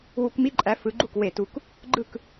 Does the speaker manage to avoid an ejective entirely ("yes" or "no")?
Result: no